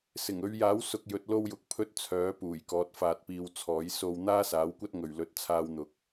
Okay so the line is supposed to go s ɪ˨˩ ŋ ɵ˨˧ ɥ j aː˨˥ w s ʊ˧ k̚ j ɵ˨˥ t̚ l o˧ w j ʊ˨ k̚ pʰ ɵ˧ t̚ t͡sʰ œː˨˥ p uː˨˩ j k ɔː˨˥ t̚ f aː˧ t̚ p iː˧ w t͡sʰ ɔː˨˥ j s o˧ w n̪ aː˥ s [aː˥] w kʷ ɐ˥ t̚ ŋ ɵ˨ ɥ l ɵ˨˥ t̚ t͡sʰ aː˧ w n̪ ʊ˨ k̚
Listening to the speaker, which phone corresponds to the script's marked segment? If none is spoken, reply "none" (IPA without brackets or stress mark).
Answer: aː˨˥